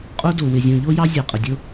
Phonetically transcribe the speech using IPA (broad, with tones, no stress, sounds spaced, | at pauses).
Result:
qʼ o˦ d o˨ w ɪ˨ zʲ õ˨ ʎ o˦ j ɑ˦ zʲ ɑ˨ qʼ ɘ˨ dʲ o˦